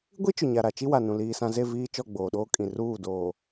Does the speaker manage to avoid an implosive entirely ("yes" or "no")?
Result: no